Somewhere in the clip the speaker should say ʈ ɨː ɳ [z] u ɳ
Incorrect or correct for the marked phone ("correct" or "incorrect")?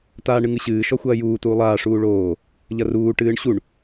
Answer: incorrect